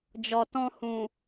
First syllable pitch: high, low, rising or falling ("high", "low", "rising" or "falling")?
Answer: low